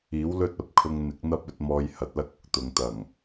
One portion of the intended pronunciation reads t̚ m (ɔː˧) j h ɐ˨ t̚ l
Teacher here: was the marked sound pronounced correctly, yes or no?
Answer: yes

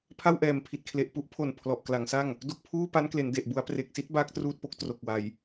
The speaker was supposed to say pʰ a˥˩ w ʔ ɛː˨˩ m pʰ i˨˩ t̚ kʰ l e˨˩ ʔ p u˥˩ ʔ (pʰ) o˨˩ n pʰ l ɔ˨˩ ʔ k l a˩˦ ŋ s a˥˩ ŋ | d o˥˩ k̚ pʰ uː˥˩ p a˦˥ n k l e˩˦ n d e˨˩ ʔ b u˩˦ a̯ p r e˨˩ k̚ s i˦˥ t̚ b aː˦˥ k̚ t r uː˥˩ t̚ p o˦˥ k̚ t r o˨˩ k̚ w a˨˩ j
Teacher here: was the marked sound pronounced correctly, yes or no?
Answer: yes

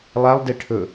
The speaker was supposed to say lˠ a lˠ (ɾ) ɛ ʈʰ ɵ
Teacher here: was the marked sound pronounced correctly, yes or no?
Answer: no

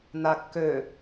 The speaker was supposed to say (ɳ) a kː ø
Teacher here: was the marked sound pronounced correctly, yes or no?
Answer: no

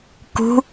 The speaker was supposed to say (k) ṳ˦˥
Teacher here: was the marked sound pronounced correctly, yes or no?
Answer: yes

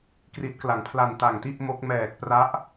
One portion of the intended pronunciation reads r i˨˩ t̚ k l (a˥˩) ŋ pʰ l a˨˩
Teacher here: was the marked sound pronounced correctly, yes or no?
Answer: no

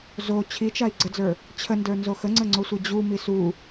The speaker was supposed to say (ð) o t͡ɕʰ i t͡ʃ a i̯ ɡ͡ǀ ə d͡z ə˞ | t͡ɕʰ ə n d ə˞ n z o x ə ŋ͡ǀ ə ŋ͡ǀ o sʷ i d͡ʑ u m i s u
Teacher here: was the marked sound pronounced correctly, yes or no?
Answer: no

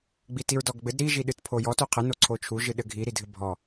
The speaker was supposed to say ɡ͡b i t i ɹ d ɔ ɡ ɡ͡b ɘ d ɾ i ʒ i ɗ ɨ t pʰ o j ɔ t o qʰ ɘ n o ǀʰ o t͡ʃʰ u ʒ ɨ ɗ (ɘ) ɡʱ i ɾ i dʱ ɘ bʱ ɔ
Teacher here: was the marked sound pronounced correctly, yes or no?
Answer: yes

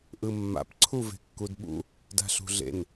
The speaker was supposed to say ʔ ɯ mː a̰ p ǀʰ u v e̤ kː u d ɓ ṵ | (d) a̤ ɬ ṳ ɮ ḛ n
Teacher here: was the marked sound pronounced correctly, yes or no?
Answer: yes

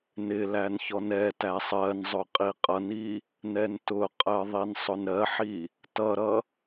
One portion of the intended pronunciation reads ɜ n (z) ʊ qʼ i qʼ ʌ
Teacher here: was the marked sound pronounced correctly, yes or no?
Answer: no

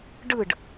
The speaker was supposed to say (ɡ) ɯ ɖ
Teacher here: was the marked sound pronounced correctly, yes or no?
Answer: no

